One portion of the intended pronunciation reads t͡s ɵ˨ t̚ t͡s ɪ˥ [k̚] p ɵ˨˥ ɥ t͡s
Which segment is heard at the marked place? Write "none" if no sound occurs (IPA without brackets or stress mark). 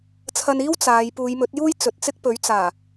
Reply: k̚